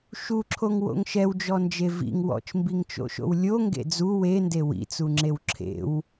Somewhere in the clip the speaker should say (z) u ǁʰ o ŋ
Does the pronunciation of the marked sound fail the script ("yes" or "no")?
yes